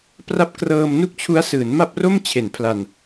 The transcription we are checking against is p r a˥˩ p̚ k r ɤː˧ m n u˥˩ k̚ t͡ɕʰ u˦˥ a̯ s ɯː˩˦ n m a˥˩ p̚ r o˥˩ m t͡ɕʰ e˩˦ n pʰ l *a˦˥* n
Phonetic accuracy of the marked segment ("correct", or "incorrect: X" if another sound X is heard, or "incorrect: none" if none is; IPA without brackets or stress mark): incorrect: a˨˩